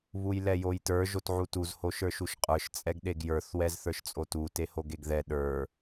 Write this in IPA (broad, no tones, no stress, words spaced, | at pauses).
βujlɛjojtə˞ ʒotʕutuz hoʃə˞ʃuʃqʼə˞ʃ t͡sʼɛɡɗeɡjə˞θ wɛzθə˞ʃt͡sʼotu tehoɡeɡðɛ ɗə˞